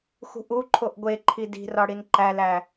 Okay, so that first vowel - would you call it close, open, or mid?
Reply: close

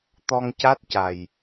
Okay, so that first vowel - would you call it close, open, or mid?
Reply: mid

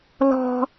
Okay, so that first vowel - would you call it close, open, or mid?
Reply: mid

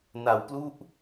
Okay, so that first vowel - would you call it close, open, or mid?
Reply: open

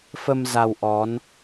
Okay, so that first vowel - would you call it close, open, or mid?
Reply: mid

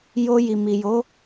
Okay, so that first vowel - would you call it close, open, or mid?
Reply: mid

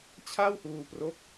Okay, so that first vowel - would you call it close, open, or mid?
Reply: open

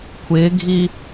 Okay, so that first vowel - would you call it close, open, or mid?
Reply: close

